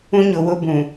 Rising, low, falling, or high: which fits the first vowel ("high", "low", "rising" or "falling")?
high